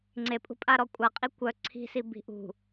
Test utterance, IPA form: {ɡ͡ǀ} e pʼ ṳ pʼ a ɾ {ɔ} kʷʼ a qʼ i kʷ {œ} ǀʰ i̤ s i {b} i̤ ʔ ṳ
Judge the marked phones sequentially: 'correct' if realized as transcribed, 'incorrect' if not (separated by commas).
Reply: incorrect, correct, correct, correct